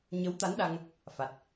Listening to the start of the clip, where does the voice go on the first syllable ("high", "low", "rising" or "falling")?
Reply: rising